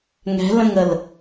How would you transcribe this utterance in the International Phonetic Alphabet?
ŋ ɛ̤ l ə̃ ŋ ə l

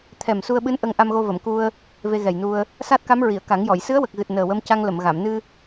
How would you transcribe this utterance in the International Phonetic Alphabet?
t̪ʰ ɛ˨˩ m s u˧ ə̯ ɓ ɨ˧˥ n ʔ ə˧ ŋ ʔ a˧ m ɣ o˧ v ə˨˩˨ m k u˧ ə̯ | v e˧ ɣ ɛ˨˩ j n u˧ ə̯ | s a˦˥ t̚ k a˧˥ m ɹ i˨˩˨ ə̯ k a˨˩˦ ŋ j ɔ˨˩˨ j s ɨ˧˥ ə̯ w ə˨˩ k̚ ɣ ɨ˨˩ t̚ n əː˨˩ w ə˧ m c a˧ ŋ l ə˨˩˨ m ɣ a˨˩˨ m n ɨ˧

